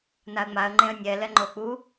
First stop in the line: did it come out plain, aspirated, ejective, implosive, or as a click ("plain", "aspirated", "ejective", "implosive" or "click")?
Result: click